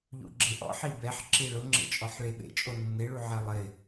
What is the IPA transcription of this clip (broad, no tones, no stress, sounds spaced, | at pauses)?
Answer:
ʎ ṵ ɡ͡ǁ e ʔ ɔ̰ ħ i b ɛ ħ ǁ i ɭ ʊ ŋ͡ǁ ḛ t͡ʃʼ ɔ ħ ɭ e ɓ ḛ t͡ʃʼ o nː e ɭ u ʕ ɛ lˠ ɪ